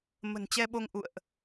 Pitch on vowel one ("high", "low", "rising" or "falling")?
low